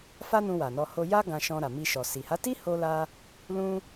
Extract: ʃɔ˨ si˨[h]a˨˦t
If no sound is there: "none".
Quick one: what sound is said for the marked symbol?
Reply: h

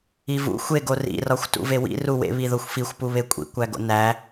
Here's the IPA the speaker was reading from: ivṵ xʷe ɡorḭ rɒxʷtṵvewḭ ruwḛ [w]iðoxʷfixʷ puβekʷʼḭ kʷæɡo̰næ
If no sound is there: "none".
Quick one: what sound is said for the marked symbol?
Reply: β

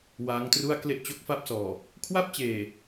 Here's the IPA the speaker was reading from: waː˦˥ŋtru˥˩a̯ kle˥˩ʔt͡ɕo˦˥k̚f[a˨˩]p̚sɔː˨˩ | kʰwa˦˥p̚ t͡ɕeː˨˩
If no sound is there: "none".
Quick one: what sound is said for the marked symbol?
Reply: a˥˩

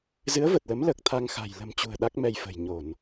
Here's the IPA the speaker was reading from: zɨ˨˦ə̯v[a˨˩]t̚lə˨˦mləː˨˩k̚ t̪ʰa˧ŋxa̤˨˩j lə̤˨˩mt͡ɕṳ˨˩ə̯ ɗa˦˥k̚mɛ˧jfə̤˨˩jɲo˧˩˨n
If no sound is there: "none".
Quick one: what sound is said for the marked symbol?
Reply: ə˨˩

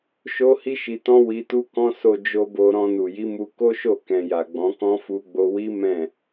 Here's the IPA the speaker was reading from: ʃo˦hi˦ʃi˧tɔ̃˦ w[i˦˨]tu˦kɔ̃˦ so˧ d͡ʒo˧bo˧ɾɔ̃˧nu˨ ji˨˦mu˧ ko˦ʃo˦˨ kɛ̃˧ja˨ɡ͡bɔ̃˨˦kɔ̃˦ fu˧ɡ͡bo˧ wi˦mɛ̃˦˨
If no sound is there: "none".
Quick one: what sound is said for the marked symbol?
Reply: i˧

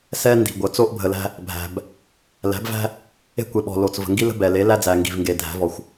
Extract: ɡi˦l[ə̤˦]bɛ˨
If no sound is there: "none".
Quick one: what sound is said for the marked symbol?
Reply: ə̤˦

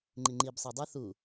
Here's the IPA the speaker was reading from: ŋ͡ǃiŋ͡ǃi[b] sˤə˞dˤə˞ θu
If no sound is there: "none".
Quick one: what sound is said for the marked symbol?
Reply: b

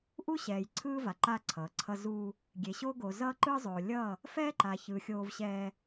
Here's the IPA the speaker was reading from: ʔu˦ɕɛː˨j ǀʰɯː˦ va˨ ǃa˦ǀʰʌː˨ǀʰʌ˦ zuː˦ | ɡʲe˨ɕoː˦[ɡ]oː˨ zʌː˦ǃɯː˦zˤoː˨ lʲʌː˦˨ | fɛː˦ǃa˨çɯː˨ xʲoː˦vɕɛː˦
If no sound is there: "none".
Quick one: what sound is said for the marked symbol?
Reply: ɡ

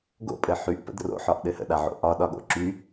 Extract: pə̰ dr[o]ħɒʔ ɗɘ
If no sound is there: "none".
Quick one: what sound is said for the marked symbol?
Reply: o̰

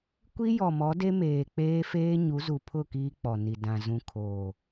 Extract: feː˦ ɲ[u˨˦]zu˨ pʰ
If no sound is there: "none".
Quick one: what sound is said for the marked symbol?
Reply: u˨˦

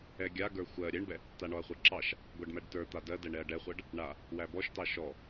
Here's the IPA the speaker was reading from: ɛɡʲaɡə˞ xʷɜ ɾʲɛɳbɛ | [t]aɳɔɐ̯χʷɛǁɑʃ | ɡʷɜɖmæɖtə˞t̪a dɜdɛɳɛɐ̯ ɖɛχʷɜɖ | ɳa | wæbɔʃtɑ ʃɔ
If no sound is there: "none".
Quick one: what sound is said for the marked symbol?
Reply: t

